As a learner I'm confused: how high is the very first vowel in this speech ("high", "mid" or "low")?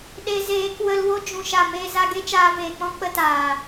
mid